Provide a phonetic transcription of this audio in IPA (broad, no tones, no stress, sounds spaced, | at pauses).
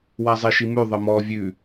w a zˤ i ʃ i m ʉ ðˤ ə m ɔ vʲ ʉ